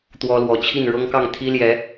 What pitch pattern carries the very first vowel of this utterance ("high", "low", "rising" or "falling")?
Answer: high